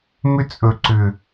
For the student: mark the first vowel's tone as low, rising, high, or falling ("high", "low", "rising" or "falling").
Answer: high